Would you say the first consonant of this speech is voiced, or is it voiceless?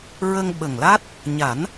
voiced